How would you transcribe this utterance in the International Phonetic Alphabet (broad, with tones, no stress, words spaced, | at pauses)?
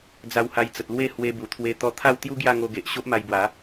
d͡za˧wha˧j t͡sə˨t̚lwe˥˧ hwe˧bu˨˩ t̪ʰwe˧ t̪ɔ˧t̪ʰa˥˧wt̪ju˦ ɡja˥˧ŋo˧ɡe˨ʔ ɕo˦ʔma˧jbwa˨˦